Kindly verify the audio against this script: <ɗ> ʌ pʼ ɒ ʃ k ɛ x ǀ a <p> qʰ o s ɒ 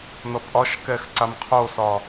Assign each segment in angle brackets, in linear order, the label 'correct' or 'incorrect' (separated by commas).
incorrect, incorrect